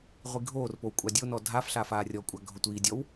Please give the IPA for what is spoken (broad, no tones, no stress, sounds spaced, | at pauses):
ʁʷ i ɡʱ oː r p o w kʷʼ a dʲ o n ɔ dʱ a f ɬ a f aː rʲ ɔ kʷʼ a ɡʱ ʊ tʷ iː dʲ ɔ w